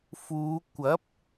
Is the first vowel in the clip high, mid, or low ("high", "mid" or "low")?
high